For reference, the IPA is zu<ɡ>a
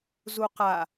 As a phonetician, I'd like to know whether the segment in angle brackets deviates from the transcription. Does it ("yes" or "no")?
yes